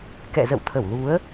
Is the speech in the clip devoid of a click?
yes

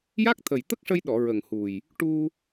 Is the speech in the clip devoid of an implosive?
no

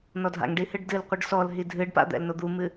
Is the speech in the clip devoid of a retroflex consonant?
no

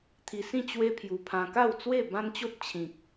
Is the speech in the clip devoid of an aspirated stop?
no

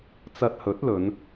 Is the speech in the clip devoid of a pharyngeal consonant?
yes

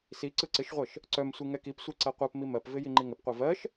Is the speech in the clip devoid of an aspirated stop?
yes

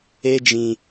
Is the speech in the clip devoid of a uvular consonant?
yes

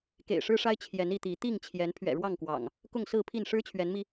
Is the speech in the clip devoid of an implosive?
yes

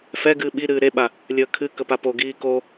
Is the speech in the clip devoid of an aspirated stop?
no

